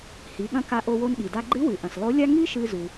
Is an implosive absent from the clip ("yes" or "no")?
no